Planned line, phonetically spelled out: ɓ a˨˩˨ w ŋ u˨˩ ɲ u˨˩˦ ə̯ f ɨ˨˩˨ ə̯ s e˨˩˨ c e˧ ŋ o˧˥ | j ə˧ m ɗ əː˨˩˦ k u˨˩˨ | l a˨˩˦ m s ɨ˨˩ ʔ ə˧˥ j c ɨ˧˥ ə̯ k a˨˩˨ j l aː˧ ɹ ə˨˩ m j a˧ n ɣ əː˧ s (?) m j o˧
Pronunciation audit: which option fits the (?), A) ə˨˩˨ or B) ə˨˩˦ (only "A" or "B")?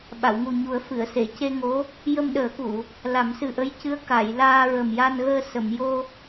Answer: A